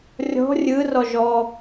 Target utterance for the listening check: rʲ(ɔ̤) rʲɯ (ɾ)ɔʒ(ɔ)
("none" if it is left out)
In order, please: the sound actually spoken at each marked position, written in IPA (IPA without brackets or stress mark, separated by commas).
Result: ɔ̤, r, ɔ